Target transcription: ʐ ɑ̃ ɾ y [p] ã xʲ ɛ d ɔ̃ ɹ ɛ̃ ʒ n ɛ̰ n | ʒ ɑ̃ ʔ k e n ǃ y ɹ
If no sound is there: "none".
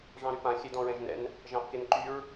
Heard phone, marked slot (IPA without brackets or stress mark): p